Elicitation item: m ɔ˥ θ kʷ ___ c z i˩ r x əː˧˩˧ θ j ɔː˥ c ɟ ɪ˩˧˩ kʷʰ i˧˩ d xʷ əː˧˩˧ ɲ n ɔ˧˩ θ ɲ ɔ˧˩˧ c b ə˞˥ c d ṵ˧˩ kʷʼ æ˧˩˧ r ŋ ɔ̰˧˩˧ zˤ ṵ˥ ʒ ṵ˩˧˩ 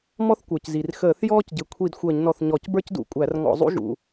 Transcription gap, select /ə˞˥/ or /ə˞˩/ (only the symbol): ə˞˩